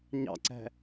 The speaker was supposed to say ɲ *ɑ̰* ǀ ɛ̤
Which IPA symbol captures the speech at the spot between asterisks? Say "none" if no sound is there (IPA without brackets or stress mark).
ɑ̰